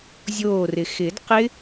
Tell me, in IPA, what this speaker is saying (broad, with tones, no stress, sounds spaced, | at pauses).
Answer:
zʲ oː˧˩ r ɪ˩ x ɪː˨˩˦ d q ɪ˦˥